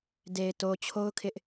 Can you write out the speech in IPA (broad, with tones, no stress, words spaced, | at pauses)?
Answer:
de˨ɪ̯to˨t͡ɕʰo˦ʊ̯kʰɪ˦ʔ